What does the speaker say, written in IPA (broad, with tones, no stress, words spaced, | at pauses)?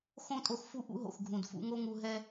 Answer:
xõ˦tʼo˧x fu˧ ʔṵ˦ɦo̰˨x ɡʱũ˨dfṵ˧ŋo˦ŋu˧ ɦɛ˦